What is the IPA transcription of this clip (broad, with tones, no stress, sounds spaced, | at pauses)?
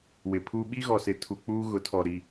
w ɪ˨ pʰ u˦ ɓ i˦ ɣ ɔ˨ s ɪ˨˦ tʰ u˨ k͡p uː˦ ɣ ʊ˨˦ tʰ ɔ˨ ɾ i˨